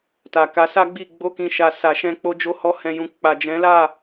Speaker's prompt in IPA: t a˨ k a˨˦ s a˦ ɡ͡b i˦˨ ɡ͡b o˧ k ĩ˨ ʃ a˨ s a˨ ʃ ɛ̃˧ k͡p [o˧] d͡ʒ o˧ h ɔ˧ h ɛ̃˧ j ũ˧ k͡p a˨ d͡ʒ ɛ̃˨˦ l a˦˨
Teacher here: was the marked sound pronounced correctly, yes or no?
yes